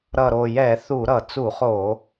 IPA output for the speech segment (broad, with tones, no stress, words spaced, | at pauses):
ɾʌ˨˩ɾo˨˩jɛ˧˩˧ θu˧˩˧ɾʌ˧˩˧ t͡su˧˩˧χo˧˩˧